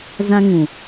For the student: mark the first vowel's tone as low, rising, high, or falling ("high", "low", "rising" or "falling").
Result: high